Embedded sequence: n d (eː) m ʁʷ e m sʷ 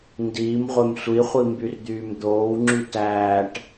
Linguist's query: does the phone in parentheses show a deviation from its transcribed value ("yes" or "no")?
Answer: yes